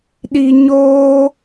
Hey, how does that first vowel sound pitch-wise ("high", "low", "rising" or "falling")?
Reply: high